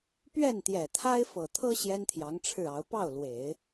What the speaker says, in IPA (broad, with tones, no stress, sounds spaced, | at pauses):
p ɥ ɛ˥˩ n t̪ j ɛ˨˩ t̪ʰ a˥ ɪ̯ f ɤ˨˩ t̪ʰ ɤ˥ ɕ j ɛ˥ n t̪ʰ j ɑ˧˥ ŋ ʈ͡ʂʰ ɻ̩˥˩ ɑ˧˥ ʊ̯ p ɑ˥˩ ʊ̯ l w e˨˩˦ ɪ̯